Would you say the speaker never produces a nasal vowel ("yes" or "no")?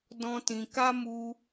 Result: no